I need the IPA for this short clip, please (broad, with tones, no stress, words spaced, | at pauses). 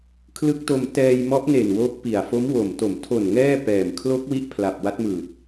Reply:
kʰlɯ˦˥k̚to˧m tɛː˧jmɔ˦˥ʔne˨˩n wo˦˥k̚pi˨˩a̯ fo˦˥mwo˨˩mto˨˩m tʰo˨˩n ŋɛː˥˩pɛː˨˩m kʰlo˦˥k̚ wi˥˩ʔpʰla˨˩p̚ wa˦˥t̚mɯː˨˩t̚